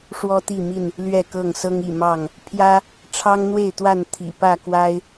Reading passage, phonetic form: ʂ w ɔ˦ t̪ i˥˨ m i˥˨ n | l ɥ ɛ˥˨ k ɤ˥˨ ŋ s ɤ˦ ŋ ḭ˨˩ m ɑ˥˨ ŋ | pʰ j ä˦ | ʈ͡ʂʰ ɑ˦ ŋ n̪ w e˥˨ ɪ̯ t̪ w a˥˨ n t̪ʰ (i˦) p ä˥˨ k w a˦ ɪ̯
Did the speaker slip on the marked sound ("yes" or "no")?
yes